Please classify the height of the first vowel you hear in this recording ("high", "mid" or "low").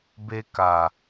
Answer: mid